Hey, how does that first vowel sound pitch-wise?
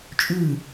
falling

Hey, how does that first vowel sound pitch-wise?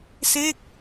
falling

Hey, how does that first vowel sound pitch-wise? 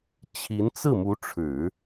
rising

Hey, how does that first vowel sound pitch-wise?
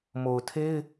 low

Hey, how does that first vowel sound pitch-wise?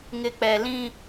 low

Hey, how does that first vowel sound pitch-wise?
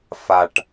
low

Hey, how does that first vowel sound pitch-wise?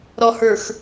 low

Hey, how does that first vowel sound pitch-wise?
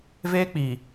high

